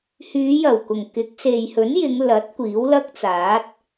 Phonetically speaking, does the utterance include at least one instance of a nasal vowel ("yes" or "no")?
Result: no